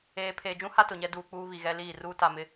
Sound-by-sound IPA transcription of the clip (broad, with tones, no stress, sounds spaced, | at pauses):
eː˨ pʰ eː˨ d͡ʒ ũ˦ h a˦ t ʊ˨ ɲ ɛ˦ d uː˨ k͡p uː˦ β i˨ ɣ ɛ˦ l iː˦˨ r uː˦ t a˨ m ɪ˨